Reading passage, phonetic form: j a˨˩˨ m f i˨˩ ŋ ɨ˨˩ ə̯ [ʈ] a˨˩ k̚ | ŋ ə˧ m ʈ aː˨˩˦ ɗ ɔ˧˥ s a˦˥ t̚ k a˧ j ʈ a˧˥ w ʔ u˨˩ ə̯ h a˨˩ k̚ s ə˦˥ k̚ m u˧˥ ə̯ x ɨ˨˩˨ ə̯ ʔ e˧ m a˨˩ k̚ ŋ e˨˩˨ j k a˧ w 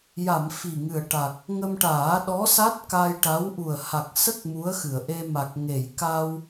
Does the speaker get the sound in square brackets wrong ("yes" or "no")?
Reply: no